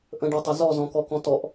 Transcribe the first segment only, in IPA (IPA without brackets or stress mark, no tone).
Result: ʔ